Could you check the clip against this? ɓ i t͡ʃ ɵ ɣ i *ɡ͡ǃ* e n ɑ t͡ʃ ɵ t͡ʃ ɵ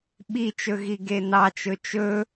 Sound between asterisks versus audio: incorrect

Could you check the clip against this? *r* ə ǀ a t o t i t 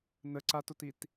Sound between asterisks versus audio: incorrect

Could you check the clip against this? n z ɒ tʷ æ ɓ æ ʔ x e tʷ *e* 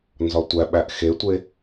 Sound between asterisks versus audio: correct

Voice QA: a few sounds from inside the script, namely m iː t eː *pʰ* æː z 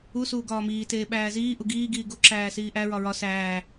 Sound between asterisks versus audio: incorrect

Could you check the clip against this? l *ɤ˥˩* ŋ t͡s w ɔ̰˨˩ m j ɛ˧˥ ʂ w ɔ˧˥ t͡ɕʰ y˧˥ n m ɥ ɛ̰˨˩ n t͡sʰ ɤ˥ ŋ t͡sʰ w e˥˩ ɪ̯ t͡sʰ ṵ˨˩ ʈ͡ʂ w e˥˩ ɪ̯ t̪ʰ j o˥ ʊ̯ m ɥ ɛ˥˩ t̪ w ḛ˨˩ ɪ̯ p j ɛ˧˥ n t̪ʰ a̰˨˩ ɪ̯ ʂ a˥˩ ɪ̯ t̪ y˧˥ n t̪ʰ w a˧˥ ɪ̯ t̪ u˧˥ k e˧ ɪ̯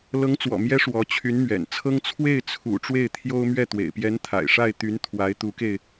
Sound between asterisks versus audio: incorrect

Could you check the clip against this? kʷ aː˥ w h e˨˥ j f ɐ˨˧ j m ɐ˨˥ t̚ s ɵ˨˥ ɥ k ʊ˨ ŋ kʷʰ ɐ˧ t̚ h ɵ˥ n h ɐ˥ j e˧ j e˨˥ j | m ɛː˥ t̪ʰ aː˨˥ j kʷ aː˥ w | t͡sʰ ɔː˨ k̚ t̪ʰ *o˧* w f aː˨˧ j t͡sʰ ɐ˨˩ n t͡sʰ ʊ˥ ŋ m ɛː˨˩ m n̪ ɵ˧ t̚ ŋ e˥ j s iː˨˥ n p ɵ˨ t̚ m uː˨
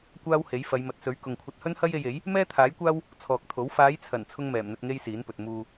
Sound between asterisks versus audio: incorrect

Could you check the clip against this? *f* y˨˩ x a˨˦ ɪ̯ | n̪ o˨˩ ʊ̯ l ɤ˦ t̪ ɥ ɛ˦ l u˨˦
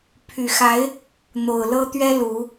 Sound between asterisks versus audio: incorrect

